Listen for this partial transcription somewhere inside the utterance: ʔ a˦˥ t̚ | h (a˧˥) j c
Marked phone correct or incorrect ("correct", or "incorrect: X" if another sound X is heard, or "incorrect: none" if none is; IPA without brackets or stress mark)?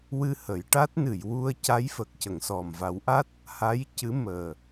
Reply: correct